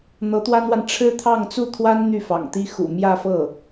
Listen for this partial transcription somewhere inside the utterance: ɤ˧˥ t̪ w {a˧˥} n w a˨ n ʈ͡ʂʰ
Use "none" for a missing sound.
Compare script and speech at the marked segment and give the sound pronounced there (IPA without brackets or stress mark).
a˥